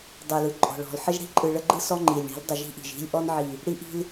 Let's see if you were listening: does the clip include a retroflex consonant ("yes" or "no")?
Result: yes